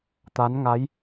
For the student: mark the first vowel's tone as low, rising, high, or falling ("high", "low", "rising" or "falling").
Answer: rising